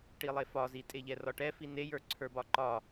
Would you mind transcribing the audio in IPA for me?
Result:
ʈilˠefɒzi tʼeʎɛrɒʈɛ finejə˞ ǀʰə˞bɒǃɒ

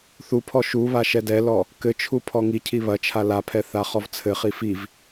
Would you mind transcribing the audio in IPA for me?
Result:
θupʰɔ ʃuβa ʃɛdɛlɔ | kɘt͡ʃʰu pʰɔŋicʰi βɐt͡ʃʰa lapʰɛ θaχɔvt͡sʰɘχi fiv

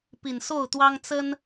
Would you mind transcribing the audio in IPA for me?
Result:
pi˨˩nso˥˨ʊ̯t̪wɑ˦ŋ t͡sə˦n

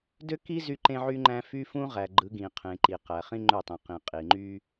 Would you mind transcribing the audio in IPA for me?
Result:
dø˦ki˦ zy˦ǃẽ˦ʕy˦ŋ͡ǃæ̃˦ fy˦fũ˦ʁæ˨ɡ͡ǃɯ˨˦ ɡĩ˨qʰẽ˨ǃi˨ qæ˨χĩ˦ŋ͡ǃø˦˨tˤĩ˨ qĩ˨qʼi˨ŋ͡ǃy˦

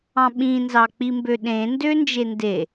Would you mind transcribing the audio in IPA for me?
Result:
ɑ̃ɓĩnzɑ k͡pimbøɗẽndø nd͡ʒende

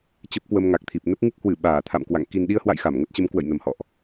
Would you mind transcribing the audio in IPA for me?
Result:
t͡ɕə˦˥p̚kwə˧mŋa˨˩k̚t̪ʰi˨˩p̚ nə˦˥p̚ŋɨ˦˥k̚hwɨ˧˩ ɓaː˧˩ t̪ʰa̰˧˨mkwa̰˧˨ŋ ki˨˩nɗi˧ə̯hwa̰˧˨j xa˧˩mŋə˦˥t̚t͡ɕə˨˦m kwə̰˧˨jnə˨˩mhɔ̰˧˨ʔ

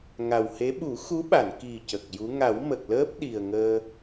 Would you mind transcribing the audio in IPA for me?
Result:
ŋa˨˩whe˧˥ ɓu˨˩˦xu˧˥ɓa˨˩˨n ki˨˩ cə˨˩k̚ju˧˥ ŋa˨˩˦wmə˨˩k̚ləː˦˥p̚ ɗi˨˩ə̯ŋəː˧

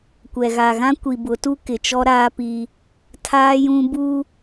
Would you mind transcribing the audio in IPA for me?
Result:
kʷɛ˨ɣa˨ɣã˦ kʷi˨bʊ˨˦tu˦ kɪ˨t͡ʃɔ˦ ɾaː˦pi˦ | tʰaː˦jũ˦ bu˦

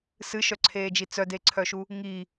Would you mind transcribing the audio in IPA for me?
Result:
sɨʃœǀʰeːd͡ʒi t͡sœdeǀʰœʃu | ŋi

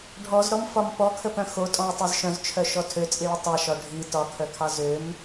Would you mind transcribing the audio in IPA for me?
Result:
ɖʱɔzɾɔmfɒm pɔkʰəpœ̃ xotʼɔ̃ɐ̯tˤœz ʃœ̃zt͡ʃʰœʃɔ tʰøt͡sʼiɭə tˤɑʃɒ ɖʱi tɒkʰœkʰɑ zøm

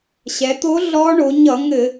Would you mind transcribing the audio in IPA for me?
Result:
ɕɛ˩˧t̪o˧˥ ɮɔ˧˥ ɳo˩˧ɲʌ˧˩˧ŋɘ˧˩˧

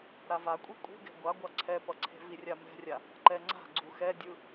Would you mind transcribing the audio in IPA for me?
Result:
ɾavakʷʼi kʷʼi̤ɡɛ̤ ɡʷaɡʷa ǀʰɛpʌǀʰe̤ virʲamɛ̤rʲa | ǃɛŋ͡ǀa̤ ɡ͡ǀuxɛdʲɯ

